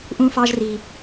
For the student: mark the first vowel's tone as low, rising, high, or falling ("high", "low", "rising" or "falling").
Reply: high